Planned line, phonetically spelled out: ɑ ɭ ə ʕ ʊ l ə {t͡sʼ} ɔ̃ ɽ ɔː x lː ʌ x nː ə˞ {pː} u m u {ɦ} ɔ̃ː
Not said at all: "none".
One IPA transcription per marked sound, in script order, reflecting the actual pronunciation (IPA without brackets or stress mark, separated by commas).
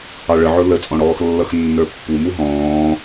t͡sʼ, pː, ɦ